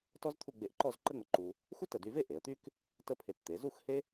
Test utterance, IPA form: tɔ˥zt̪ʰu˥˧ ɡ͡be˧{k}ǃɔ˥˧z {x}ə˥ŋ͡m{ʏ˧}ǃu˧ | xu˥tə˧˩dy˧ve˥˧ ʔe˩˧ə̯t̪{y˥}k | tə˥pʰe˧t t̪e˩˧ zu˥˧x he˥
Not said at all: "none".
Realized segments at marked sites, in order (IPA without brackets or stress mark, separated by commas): ʔ, ǃ, ə˧, y˥